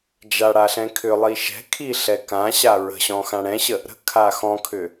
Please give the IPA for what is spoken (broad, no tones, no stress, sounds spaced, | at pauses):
d͡ʒ a ɽ a ɬ ɛ̃ kʰ ʏ lˠ i ʃ ɛ̤ kʰ i ɬ ɛ k ã ɕ a ɹ ə̤ ɕ ɔ̃ x ã ɽ ɛ̃ ɕ ə | ɾ ə̤ kʰ a x ɔ̃ kʰ ʏ